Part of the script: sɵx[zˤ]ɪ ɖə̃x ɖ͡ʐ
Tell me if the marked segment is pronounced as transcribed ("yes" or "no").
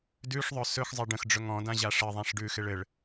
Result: yes